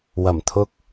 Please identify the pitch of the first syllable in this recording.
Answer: low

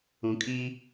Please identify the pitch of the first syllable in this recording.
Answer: low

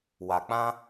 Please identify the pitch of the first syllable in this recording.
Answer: low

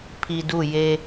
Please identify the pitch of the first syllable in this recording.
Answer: low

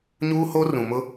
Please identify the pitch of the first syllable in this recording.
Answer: high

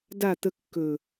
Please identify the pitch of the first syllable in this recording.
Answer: falling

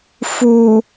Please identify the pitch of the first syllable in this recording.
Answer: low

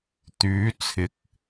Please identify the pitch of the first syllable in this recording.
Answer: rising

